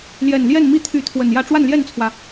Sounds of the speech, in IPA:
ljɛ˨˩nljɛ˥˨nmi˥˨ t̪ʰy˨˦ t̪ʰwə˨˩njä˥˨ ʈ͡ʂwa˥˨nljɛ˥˨nt͡sʰwä˩

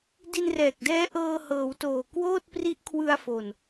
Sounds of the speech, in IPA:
di˧nrɛː˨˩k̚dɛː˦˥ ʔɤː˧hɤː˩˦wtoː˨˩ kwoː˥˩t̚pri˦˥ʔkʰwɯ˧a̯fo˨˩n

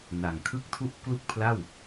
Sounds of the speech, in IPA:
na˨˩ŋkʰɯ˥˩k̚tʰu˥˩ʔ klu˥˩k̚pʰla˥˩w

